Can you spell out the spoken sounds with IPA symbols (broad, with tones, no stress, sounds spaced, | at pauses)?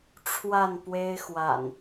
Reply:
ʈ͡ʂʰ w a˥˨ n p w e˦ ɪ̯ x w a̰˨˩ n